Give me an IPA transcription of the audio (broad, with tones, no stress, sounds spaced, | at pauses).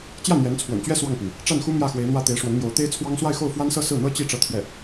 t͡ɕ j ä˥˩ n̪ j ɛ˧˥ n t͡sʰ w ə̰˨˩ n t͡ɕ ɥ ɛ˥ s w ɑ˥˩ ŋ p i˩ ŋ | ʈ͡ʂ a˥˩ n x u˥ m j ä˥˩ x w e˧˥ ɪ̯ n̪ w ä˥˩ t̪ e˧˥ ɪ̯ ʂ w ə˧˥ n m j o˧˥ ʊ̯ t̪ e˥ ɪ̯ t͡sʰ w ɑ˥ ŋ s w a˥˧ ɪ̯ x o˥˩ ʊ̯ f w a˥ n s ɤ˥˧ s ɹ̩˥˩ n̪ ɤ˥ t͡ɕ i˥˧ ʈ͡ʂ ɤ˥˧ t̪ʰ j ɛ˥˩